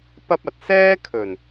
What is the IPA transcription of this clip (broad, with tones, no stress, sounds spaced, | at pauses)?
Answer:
p ɐ˥ p̚ ɐ˨ t̚ s ɛː˥ kʰ ɵ˨˩ n